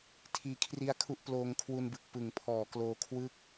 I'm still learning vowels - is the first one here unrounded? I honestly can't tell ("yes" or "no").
yes